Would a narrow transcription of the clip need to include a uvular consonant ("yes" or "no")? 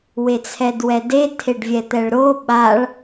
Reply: no